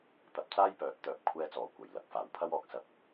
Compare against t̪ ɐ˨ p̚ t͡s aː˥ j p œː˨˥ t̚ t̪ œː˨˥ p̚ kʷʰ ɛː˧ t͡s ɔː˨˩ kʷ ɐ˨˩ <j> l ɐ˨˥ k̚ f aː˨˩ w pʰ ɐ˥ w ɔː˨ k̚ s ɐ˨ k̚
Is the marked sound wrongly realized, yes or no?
no